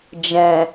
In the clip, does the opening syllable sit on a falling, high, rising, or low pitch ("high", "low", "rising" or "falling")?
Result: low